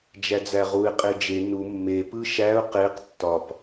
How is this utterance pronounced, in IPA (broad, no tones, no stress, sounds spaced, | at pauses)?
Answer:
d͡ʒ æ d͡z æ ʁ u ɪ̯ qʼ e d͡ʒ e n u mː e p ɯ ʃ æ ʊ̯ q e q tː ɒ p